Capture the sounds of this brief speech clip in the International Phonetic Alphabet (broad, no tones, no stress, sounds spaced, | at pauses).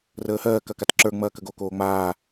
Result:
r əː h ɜː k ɐ k a t ǁ ə˞ ŋ͡m ɐː k ə ɡ o k oː ŋ͡m aː